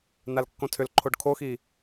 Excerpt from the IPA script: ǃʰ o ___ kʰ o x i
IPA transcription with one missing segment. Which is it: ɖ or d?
ɖ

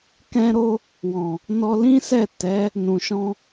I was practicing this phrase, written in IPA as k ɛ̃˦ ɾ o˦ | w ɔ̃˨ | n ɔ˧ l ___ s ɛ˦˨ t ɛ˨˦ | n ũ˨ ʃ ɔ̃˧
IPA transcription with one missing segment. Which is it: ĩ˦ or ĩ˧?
ĩ˦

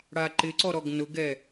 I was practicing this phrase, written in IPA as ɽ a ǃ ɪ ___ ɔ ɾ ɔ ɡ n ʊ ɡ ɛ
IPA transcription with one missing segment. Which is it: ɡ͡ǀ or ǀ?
ǀ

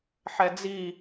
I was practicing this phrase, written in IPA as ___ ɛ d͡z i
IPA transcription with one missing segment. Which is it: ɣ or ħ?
ħ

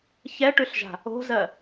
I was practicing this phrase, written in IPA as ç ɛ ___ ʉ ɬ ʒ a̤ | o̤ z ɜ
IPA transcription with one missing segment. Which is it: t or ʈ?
ʈ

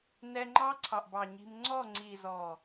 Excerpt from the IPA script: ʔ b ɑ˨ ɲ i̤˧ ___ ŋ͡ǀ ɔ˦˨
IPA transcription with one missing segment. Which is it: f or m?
m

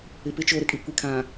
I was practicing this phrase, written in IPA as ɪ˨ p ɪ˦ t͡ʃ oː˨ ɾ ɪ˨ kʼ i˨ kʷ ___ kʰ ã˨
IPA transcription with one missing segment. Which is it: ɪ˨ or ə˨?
ɪ˨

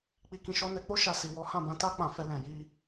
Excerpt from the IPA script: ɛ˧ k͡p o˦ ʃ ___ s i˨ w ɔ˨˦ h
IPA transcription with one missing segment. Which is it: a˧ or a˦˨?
a˧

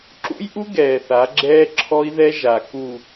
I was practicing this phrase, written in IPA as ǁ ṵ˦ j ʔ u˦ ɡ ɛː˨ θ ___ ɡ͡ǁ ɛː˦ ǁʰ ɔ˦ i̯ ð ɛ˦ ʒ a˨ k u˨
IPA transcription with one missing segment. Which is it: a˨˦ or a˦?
a˨˦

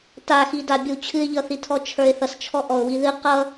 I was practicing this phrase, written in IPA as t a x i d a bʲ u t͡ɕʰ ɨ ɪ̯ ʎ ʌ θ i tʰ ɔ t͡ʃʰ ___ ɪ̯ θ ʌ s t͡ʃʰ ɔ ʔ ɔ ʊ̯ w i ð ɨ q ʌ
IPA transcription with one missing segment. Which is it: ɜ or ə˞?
ə˞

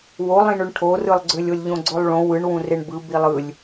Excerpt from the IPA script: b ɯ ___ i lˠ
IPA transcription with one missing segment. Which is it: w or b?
b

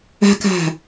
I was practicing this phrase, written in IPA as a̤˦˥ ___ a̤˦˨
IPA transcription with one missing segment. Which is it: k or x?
k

